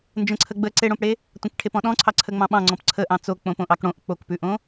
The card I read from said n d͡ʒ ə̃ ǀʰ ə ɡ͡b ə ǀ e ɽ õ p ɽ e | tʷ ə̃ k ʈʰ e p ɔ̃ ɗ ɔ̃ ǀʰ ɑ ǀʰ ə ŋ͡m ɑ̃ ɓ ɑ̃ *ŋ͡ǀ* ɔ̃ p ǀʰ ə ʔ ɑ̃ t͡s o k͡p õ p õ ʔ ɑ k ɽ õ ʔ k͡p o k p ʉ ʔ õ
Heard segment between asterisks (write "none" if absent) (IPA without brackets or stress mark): ŋ͡ǀ